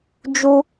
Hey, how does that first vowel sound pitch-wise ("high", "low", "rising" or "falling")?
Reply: high